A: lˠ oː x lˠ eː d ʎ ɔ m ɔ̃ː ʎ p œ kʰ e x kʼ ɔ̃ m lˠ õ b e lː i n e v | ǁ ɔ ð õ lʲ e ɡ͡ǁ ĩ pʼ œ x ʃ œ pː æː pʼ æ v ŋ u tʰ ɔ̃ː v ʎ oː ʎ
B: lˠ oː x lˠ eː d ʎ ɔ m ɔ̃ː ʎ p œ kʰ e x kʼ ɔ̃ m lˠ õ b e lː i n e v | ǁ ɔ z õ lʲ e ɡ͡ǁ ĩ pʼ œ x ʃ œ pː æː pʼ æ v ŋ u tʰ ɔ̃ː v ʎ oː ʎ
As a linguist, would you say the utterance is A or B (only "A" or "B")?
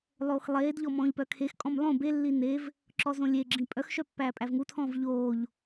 B